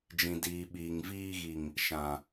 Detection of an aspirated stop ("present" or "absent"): absent